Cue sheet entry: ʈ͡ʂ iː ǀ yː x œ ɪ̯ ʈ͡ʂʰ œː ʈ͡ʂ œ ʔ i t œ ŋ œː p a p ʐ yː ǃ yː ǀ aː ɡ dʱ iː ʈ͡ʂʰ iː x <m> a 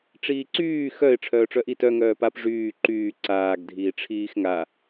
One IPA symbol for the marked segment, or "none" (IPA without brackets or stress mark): ŋ